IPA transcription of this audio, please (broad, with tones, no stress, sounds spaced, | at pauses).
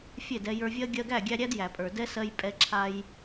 fʲ e˦˨ d ɛ˧ j ə˞˧ vʲ ɜ˦ ɡʲ ɜ˧ ɡ æ˦˨ ɡʲ æ˧ ɾʲ æ˦ d j æ˨ pʼ ə˞˨ d ɛ˦ s ɜ˧ j pʼ ɛ˧ ǁʰ a˧ j